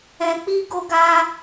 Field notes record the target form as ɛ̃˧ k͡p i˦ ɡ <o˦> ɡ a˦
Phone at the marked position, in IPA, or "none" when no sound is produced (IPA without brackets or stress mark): o˦